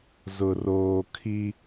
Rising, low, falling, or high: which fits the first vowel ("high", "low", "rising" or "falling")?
low